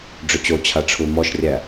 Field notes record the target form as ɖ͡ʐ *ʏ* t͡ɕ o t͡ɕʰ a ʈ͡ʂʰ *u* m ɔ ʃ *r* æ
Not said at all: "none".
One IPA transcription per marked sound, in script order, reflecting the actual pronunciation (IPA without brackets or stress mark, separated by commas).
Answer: ʏ, u, rʲ